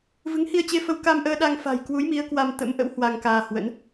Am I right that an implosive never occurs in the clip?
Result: no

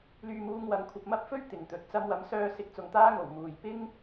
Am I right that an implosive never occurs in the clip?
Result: yes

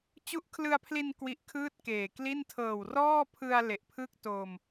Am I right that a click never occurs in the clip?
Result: yes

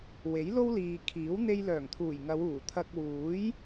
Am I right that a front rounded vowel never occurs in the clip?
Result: no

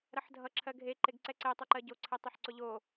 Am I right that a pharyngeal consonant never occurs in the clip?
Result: no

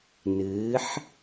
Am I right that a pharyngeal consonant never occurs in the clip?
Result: no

